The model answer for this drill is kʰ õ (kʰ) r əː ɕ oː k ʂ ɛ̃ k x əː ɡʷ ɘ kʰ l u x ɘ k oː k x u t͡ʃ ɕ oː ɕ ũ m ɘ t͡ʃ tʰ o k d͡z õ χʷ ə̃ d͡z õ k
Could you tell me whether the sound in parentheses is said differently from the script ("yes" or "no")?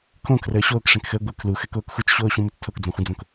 no